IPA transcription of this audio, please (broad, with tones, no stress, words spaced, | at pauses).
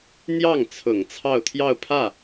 n̪jɑ˥˩ŋ t͡sʰʊ˨˩ŋ t͡sʰɑ˥˧ʊ̯t̪ʰjɑ˥˧ʊ̯pʰä˥˩